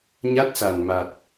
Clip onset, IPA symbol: ɲ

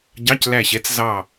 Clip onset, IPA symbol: ɟ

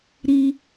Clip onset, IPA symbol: ɾ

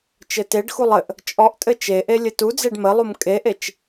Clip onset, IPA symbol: t͡ʃ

